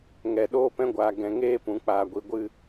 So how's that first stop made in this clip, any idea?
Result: implosive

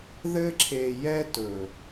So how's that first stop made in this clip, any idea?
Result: click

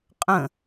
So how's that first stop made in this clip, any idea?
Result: ejective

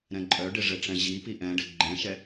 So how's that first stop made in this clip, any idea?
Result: click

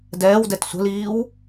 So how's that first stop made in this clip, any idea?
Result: plain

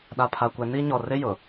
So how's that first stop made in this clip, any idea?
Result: implosive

